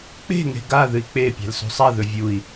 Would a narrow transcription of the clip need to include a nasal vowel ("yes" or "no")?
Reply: no